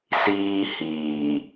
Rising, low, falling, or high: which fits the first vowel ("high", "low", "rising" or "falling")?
high